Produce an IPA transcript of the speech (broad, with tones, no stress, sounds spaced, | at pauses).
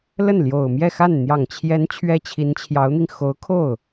l ə˥˩ n l j o˨˩ ʊ̯ m j ɛ˥˧ x a˥˩ n n̪ j ɑ˨˩ ŋ t͡ɕʰ j ɛ˧˥ n t͡ɕʰ ɥ ɛ˥ t͡ɕʰ i˧˥ n t͡ɕʰ j ɑ˧˥ ʊ̯ n̪ i˧ ŋ x o˧˥ ʊ̯ kʰ o˥˩ ʊ̯